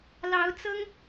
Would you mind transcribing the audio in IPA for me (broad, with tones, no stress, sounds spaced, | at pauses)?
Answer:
l ɑ˧˥ ʊ̯ t͡s ɤ˥ ŋ